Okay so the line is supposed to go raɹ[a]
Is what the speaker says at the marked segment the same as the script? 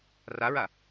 yes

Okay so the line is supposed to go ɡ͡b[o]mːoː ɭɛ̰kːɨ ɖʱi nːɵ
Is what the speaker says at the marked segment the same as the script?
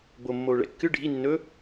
yes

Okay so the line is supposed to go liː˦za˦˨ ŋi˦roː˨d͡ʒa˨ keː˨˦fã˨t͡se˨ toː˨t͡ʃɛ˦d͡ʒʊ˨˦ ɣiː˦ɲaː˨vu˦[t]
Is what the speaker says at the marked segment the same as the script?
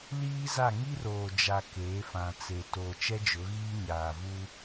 no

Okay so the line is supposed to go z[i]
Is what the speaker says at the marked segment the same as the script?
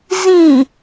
no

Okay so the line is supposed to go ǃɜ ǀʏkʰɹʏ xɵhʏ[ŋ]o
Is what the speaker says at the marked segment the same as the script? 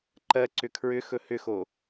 no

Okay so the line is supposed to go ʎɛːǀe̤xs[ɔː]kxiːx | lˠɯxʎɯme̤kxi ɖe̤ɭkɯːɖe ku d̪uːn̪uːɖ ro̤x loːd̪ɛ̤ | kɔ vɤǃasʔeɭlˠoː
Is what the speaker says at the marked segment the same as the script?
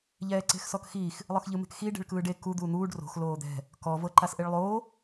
no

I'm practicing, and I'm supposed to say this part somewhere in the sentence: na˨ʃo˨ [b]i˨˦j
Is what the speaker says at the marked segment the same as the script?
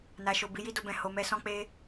yes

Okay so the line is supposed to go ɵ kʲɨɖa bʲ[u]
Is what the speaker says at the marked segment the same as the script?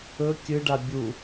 yes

